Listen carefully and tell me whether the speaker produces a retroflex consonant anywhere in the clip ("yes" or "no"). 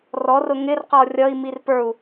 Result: no